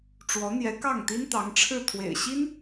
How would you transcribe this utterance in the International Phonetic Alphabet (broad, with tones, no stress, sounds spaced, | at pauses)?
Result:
ʈ͡ʂ w ɔ˧˥ n̪ j ɛ˧˥ k ɑ˥˩ ŋ t̪ i˥ n t̪ ɑ˧˥ ŋ ʈ͡ʂʰ ɻ̩˥˩ t̪ʰ w ḛ˨˩ ɪ̯ ɕ i˥ n